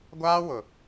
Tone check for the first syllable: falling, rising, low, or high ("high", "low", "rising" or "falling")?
high